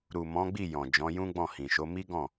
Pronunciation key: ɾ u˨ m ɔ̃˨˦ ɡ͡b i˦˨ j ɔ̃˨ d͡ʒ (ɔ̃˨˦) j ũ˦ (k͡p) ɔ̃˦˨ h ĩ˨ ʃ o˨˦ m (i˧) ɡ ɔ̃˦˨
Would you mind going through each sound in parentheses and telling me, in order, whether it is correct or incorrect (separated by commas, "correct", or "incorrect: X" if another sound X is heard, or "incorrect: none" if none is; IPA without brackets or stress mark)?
correct, incorrect: ɡ͡b, incorrect: i˦